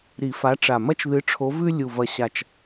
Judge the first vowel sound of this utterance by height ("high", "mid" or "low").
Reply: high